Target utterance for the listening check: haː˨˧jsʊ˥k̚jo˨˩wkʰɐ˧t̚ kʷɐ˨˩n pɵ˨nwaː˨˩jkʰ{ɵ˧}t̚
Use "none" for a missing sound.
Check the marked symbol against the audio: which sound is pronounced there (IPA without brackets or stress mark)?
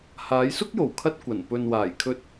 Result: ɵ˧